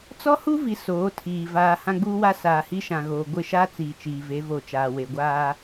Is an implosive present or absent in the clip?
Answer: absent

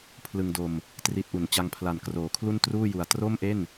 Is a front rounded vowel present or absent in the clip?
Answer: absent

